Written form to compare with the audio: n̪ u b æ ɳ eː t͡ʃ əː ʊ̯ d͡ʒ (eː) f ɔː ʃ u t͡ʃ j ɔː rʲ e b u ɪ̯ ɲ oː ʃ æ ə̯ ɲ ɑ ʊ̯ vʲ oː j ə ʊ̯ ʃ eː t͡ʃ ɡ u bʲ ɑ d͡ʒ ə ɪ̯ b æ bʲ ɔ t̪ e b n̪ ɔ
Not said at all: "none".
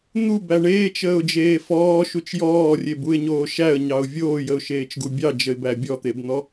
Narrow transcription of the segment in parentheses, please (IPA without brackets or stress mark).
eː